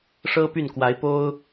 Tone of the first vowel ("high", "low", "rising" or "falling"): high